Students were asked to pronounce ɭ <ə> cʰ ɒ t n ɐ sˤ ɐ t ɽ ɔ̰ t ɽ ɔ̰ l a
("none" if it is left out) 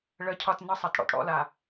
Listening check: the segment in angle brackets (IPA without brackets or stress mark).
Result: ə